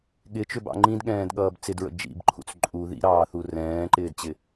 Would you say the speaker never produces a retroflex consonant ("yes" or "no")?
yes